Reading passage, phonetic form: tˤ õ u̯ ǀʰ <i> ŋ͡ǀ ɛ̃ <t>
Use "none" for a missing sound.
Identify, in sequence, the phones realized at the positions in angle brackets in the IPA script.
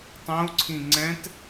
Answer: ĩ, t

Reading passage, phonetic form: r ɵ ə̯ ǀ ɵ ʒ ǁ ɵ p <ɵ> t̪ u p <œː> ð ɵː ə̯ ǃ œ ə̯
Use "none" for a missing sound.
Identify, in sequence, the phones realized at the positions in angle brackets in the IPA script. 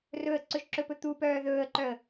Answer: ɵ, œː

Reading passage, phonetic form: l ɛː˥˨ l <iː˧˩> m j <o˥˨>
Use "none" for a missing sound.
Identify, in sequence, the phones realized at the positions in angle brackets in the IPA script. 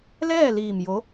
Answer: iː˧˩, o˧˥

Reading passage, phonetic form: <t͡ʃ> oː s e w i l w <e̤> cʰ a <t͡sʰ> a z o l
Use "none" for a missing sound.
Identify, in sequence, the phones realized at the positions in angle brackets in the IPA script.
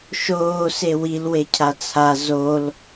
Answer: ʃ, e, t͡sʰ

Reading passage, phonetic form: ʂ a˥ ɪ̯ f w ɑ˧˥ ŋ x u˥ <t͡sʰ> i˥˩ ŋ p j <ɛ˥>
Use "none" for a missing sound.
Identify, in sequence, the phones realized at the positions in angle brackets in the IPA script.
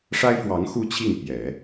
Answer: t͡ɕʰ, ɛ˨˩˦

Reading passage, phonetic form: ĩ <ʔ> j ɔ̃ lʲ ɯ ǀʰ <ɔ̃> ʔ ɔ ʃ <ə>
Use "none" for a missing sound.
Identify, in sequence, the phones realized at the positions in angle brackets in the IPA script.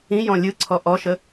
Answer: none, ɔ, ə

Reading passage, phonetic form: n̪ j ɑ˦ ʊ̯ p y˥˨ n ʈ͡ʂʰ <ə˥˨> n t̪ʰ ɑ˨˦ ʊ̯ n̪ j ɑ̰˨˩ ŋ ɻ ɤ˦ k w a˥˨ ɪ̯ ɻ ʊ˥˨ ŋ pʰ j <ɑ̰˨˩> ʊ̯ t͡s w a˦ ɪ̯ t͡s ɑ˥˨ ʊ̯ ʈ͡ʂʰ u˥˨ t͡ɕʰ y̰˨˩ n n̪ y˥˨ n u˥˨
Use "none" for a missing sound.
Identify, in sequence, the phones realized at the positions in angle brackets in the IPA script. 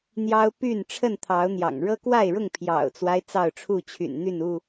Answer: ə˥˨, ɑ̰˨˩

